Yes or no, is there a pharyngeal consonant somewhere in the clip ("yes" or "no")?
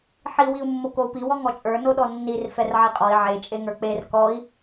yes